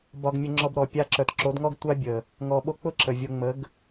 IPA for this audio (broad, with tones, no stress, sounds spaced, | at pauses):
b ɒ˧ ɡ mʲ ə˧ ŋ͡ǁ ɔ˧ b ɾ ɔ˨ pʲ a˧ ǁ œ˨ t ǁ o˨˦ d ŋ ɔ˦ ɡ tʷ a˦ bʲ ə˨ | ŋ ɔ˧ ɓ o˦ k͡p ʊ˦ ǁ ə˨ vʲ o˧ ŋ͡m ə˨˦ ɡ